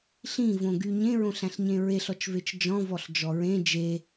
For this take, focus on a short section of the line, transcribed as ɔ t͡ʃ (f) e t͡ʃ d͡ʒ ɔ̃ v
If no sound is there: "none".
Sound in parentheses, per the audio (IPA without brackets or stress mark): v